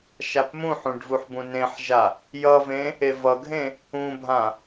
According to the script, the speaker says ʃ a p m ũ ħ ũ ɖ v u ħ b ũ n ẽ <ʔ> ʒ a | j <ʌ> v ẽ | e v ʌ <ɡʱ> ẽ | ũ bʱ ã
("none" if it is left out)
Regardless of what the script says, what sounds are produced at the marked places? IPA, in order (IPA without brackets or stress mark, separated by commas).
ħ, ʌ, ɡʱ